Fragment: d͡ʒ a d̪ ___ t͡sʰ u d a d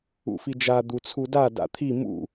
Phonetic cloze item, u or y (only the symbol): u